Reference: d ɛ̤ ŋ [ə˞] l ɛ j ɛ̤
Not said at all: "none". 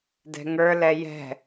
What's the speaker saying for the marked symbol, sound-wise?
ə˞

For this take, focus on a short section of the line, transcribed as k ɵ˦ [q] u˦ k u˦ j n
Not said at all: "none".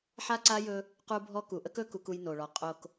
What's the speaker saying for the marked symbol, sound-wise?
k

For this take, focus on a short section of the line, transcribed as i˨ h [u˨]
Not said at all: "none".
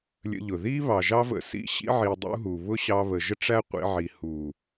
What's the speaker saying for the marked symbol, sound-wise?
u˨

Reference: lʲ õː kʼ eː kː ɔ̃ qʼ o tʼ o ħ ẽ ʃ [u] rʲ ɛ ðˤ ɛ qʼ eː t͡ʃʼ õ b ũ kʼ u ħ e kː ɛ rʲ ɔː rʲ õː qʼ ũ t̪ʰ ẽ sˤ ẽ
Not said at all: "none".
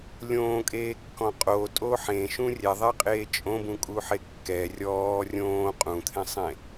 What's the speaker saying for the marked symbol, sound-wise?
ũ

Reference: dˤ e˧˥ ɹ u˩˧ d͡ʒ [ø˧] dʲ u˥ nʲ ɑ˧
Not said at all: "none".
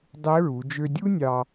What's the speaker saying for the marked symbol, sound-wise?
ø˧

